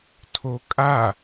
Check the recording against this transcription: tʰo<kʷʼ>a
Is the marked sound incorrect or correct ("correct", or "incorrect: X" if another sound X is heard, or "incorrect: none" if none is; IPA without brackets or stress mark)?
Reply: incorrect: kʼ